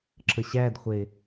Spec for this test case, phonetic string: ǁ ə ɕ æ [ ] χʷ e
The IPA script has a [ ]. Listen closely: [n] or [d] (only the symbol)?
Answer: d